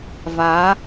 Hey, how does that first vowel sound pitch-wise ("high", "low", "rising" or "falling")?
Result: rising